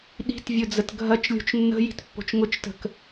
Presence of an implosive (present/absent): present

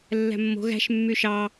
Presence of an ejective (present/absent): absent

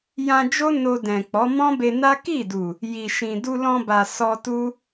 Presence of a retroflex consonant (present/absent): absent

